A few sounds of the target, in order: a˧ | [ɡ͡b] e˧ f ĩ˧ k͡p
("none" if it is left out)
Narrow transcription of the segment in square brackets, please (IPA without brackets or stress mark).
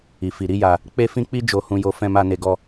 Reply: k͡p